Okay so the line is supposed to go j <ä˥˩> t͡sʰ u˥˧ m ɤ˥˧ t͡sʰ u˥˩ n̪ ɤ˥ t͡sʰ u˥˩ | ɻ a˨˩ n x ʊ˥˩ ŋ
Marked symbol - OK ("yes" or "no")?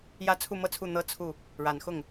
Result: no